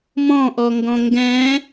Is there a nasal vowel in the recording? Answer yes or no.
yes